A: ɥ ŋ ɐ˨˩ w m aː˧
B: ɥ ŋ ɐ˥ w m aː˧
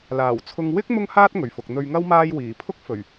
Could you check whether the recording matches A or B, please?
B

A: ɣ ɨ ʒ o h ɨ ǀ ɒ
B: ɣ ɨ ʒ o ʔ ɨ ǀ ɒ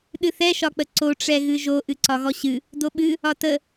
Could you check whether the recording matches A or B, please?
B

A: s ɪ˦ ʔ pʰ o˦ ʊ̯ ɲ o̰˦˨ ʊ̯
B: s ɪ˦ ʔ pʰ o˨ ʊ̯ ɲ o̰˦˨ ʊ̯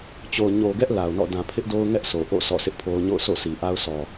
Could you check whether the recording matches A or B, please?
A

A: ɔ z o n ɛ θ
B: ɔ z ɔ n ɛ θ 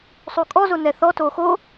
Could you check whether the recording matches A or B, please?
A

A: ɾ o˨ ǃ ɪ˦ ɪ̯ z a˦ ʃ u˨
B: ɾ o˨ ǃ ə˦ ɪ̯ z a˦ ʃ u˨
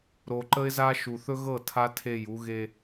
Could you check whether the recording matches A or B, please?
B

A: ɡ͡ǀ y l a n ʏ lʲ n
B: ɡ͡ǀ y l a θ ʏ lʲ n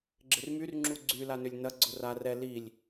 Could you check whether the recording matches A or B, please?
A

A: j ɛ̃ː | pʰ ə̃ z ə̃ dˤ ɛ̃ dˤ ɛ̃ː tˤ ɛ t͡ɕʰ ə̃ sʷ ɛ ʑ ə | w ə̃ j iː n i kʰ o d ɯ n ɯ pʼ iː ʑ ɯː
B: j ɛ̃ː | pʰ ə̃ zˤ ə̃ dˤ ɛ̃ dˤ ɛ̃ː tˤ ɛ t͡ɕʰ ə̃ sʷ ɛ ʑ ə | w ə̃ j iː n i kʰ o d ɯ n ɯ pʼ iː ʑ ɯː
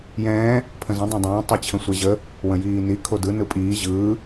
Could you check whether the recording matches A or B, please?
A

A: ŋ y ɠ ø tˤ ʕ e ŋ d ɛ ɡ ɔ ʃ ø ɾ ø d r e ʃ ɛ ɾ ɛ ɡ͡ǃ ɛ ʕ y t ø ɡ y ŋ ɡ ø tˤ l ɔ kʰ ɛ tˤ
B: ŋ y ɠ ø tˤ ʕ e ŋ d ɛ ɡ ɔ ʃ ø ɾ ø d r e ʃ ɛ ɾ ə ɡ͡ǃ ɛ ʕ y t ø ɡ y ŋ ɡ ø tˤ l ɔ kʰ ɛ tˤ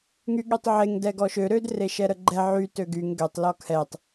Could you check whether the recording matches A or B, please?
B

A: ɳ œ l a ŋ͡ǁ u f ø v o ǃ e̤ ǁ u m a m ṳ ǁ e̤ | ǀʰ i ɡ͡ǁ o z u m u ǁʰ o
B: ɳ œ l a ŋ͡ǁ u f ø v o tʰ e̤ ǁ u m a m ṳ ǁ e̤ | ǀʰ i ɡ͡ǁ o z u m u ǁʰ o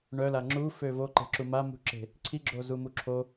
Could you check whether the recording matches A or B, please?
A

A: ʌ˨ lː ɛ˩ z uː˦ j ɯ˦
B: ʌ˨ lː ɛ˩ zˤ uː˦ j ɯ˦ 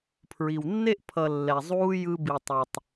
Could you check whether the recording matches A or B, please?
B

